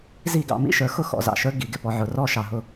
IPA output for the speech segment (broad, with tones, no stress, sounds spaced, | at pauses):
z i˥˩ ɡ ɑ̰˧ m ḭ˥ ʃ ə˞˩˥ x ʊ˥˩ x ɔ̰˩˥ z ɑ̰˩ ʃ ə˞˥ ɡ i˩˥ ɡ ɪ˧ p ɔ˧ ʕ ʊ˩˥ r ɔ˥ ʃ ɑ˩ ɦ ʊ˥˩